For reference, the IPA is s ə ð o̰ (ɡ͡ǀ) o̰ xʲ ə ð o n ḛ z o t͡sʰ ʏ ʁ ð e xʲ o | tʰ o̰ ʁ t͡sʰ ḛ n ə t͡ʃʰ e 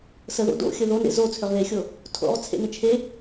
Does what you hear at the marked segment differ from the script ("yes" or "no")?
yes